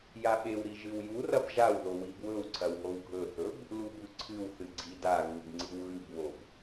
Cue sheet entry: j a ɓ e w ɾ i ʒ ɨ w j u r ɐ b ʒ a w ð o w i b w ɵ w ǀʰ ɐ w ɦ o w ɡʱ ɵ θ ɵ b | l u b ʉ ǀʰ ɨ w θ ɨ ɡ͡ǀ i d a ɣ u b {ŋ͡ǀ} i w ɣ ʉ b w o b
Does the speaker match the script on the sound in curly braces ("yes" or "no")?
yes